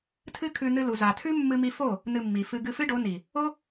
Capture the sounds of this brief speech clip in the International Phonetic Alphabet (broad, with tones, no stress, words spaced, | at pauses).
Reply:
tʰɨ˦kʰʉ˧ nɨ˧lu˨za˨tʰʉ˦ mːɨ˧mi˧fo˦˨ | nɨ˧mːi˨ fɨ˧ɡɨ˧ fɨ˦ɖo˨˦ni˨ | o˦